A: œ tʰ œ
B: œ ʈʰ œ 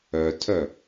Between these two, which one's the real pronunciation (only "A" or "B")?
A